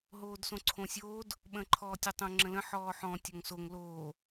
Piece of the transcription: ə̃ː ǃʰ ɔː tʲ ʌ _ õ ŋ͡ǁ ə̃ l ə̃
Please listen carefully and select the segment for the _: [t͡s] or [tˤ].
tˤ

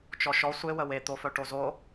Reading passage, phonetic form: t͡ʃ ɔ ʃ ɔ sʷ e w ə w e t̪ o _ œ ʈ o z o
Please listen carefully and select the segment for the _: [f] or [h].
f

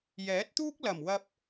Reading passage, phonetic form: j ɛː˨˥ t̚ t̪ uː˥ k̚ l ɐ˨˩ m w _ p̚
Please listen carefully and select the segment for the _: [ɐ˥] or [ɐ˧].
ɐ˧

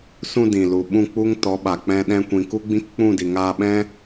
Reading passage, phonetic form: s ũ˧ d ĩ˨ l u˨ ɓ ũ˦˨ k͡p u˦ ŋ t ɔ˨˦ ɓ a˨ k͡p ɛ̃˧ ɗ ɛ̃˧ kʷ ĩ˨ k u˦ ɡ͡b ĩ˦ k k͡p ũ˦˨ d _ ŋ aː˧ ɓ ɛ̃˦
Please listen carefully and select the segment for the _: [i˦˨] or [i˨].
i˨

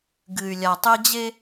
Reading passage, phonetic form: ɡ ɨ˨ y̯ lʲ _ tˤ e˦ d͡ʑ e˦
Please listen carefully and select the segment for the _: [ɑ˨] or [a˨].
a˨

